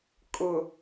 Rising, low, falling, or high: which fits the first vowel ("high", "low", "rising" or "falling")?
low